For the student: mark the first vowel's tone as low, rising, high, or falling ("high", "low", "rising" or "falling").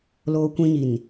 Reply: high